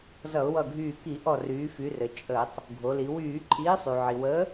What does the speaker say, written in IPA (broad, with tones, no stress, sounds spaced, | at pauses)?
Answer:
z ʌ˧˩˧ ʊ̯ w ʌ˧˩ ɡʱ yː˧˩ k i˧˩˧ ʔ ɔ˧˩ r yː˩˧ f y˩˧ r ɘ˩ t͡ʃʼ əː˧˩˧ tˤ | ɡʱ o˩˧ l i˩˧ w yː˧˩˧ ǃʼ iː˨˥ sˤ y˩ ʕ i˩ w əː˨˥